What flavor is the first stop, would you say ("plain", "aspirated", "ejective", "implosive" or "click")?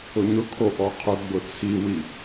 aspirated